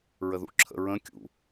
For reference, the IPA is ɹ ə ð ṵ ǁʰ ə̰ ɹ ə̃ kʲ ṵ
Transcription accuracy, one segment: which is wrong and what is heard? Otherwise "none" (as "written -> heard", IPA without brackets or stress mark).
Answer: none